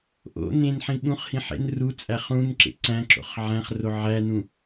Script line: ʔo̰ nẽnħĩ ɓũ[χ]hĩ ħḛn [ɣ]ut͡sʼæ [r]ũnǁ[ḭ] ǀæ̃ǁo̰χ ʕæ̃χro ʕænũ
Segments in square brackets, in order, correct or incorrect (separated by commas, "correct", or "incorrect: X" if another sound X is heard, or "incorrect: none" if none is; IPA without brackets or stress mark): correct, incorrect: r, incorrect: χ, incorrect: ḛ